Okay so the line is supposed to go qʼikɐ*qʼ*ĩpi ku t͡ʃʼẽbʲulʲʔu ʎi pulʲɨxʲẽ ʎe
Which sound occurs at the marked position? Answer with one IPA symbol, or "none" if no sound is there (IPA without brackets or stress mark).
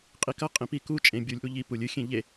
qʼ